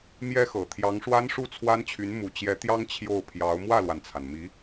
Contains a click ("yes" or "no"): no